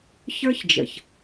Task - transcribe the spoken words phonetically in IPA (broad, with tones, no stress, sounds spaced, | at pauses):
ç ə˞˦ ç d͡ʒ ə̰˨ ç